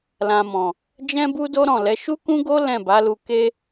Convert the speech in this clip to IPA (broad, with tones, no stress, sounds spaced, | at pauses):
l ã˨ m ɔ̃˨ | d͡ʒ ɛ̃˦ b u˦ d o˦ ɾ ɔ̃˦˨ l ɛ˨˦ ʃ u˦ k ũ˦ ɡ o˦ l ɛ̃˦˨ b a˨˦ l u˧ k e˦